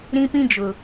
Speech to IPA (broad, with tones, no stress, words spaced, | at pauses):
ɾĩ˦pĩ˦d͡ʒʊ˨